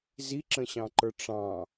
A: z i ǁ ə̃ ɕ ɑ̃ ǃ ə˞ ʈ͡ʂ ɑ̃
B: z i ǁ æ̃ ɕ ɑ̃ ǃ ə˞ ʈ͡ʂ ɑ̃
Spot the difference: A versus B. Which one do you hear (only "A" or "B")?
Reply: A